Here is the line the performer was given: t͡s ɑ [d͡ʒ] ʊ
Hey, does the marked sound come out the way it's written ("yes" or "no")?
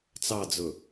no